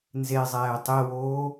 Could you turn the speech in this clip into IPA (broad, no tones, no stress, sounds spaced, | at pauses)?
n z e zˤ ɛː tˤ e w oː